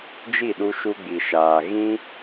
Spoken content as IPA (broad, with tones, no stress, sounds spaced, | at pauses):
d͡ʒ i˦˨ ɗ u˧ ʃ u˧ ɡ͡b i˨ ʃ aː˨ ɣ ĩ˦